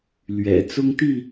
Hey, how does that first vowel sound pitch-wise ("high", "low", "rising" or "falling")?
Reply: low